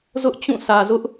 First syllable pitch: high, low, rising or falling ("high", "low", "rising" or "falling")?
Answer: high